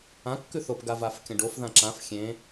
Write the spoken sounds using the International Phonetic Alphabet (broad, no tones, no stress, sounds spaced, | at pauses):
ã kː ʉ θ o p ɡ a v a f kʲ ɐ̃ ɖ o f ð ã ǁ ã f xʲ ẽ